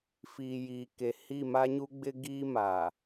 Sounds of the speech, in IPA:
fiː˨jiː˨ke˨ hi˦˨ma˦ɲu˦ɡ͡bɪ˦ ɡiː˦ma˨

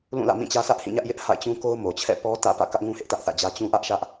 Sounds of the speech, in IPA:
lũ˦˨lä̰˦˨mĩ˦˨t͡ɕä˦ sä˦ʔhĩ˦˨ɲä˦ʔjɪ˦ʔ ha̰˦˨ɪ̯ t͡ɕũ˦ko˦ʊ̯ mo˨t͡ɕʰɛ̰˦˨ pɔ˦ tä̰˦˨ pä̰˦˨ kä˦ʔŋũ˦hɪ˦ʔ tä˦ʔθä̰˦˨d͡ʑä˦ t͡ɕũ˦ʔä˦ʔʃä˦ʔ

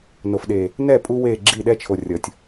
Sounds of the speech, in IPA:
no˨fɗe˨ | nɛ˦˨pʼu˧ we˦˨ɡ͡ǁi˦˨ ɗɛ˦t͡ʃʰo˨ rʲʌ˨tʲ

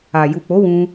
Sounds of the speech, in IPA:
a˨ ju˨k͡po˨˦ wũ˦

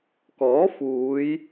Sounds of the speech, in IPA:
kɔː˨˥fuː˨˧j

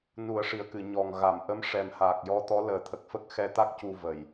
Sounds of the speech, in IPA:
nu˨˩˦ə̯ʂi˨˩ə̯kɨ˨˩˨ ɲɔ˨˩ŋ ɣa˨˩˨mʔə˧˥m ʂɛ˨˩mhaː˨˩k̚jɔ˧˥ t̪ɔ˧˥ləː˨˩˦t̪ʰə˨˩k̚fə˦˥k̚ xɛ˧t̪a˦˥k̚ cu˧və˨˩˨j

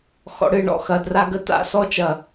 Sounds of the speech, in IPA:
xɔ̰˨ɽɨ˨ ɳɔ̰˨xɐ˨dra˦ɡə˦ ta̰˨˦sɔ˦t͡ʃɐ˨

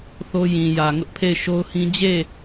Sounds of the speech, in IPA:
θo˦jĩ˨jä˨ ŋʊ˦ʔpʰe˦˨ɪ̯ʃo˦ʊ̯hĩ˦ d͡ʑe˦˨

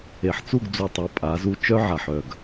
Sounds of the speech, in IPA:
e˨ħt͡su˦˨ɡ d͡zu˨tˤa˨˦ pʼa˨˦zu˦ t͡ʃœ˦ʕa˨ħ œ˦˨ɡ

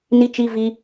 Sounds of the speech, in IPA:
ni˧t͡ʃi˧ vi˧

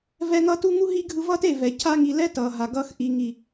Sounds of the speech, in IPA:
vɛ˧ŋʌ˦ tu˦ŋu˦ ɦi˦ ɡʱɯ˧vʌ˦te˦˨vɛ˨ cʰa˦ŋi˧ lɛ˦tʌ˨ɦa˨ ɡʌ˦x ʔi˨ŋi˨

